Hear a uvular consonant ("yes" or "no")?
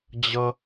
no